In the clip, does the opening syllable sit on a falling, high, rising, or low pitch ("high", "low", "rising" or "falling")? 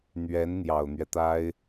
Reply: rising